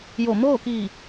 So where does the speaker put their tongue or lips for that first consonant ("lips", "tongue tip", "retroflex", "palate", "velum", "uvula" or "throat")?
palate